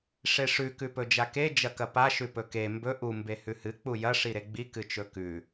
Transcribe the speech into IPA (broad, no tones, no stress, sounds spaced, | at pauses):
ʂ e ʂ ʉ k ʉ p ɵ d͡ʒ a k e d͡ʒ ɐ k ɐ p a ʃ ʉ p ɵ k e m b ɵ ʔ u m b e h ʉ h ɨ k͡p u j ɐ ʂ i ɾ e ɡ͡b i k ɨ t͡ʃ ɵ k ʉ